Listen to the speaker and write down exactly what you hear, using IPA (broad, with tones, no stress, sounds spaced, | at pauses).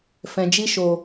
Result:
f ɛ̃˨ d͡ʒ i˧ ʃ o˨